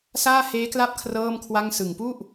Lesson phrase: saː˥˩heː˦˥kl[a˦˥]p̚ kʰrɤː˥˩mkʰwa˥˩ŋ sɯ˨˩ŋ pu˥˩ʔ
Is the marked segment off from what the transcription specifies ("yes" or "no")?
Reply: yes